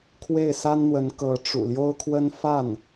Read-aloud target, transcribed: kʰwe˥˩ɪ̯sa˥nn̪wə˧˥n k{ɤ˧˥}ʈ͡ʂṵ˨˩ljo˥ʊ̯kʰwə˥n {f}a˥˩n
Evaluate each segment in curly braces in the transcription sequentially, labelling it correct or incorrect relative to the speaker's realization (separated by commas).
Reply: correct, correct